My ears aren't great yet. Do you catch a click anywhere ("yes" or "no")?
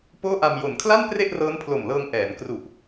no